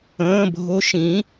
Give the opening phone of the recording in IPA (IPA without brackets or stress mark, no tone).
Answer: ə̃ː